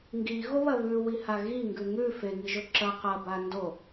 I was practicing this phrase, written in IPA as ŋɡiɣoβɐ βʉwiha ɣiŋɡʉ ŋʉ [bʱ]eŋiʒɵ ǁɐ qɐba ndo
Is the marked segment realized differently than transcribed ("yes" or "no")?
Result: yes